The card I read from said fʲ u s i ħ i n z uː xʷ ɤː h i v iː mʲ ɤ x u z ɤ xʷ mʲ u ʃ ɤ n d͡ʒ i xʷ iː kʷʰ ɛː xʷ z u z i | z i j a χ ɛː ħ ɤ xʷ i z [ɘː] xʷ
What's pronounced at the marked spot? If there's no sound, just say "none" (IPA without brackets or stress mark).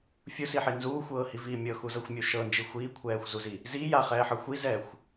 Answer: ɛː